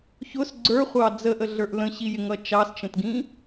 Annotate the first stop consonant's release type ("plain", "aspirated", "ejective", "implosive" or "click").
click